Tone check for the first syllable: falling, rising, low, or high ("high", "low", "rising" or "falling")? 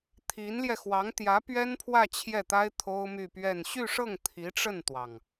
rising